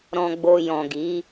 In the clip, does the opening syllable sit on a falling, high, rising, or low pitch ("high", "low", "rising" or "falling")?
low